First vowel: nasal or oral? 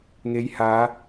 oral